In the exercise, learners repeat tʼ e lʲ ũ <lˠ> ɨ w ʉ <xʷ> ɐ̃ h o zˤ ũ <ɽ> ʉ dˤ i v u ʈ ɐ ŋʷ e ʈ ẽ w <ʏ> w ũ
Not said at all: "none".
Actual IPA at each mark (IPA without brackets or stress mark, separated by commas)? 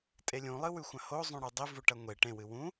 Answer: lˠ, xʷ, ɽ, ɨ